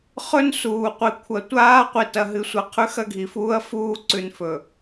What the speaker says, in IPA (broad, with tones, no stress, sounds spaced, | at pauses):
χ ɵ˦ n s uː˨ qʷ i˨ kʷʰ ɐ˨ tʷ aː˦ qʷ i˨ t ɐ˨ ɦ ɨ˨ sʷ ɐ˨ qʰ ʉ˦ x ɐ˦ ɡʱ i˨ f uː˦ ɐ̯ f uː˦ ǀ ʉ˨ n f ɵ˨